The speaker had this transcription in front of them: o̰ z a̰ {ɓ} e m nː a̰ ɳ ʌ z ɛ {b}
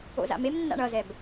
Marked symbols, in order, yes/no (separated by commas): no, yes